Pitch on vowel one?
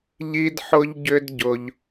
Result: high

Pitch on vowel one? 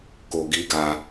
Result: low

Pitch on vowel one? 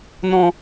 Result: high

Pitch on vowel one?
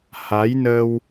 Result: rising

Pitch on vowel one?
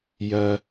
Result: low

